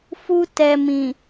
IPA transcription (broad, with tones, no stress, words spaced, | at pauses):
fu˧tɛ˨mĩ˨